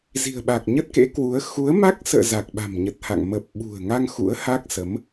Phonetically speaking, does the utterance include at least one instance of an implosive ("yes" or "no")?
yes